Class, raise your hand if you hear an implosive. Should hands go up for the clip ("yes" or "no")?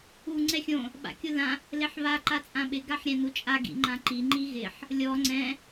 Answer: yes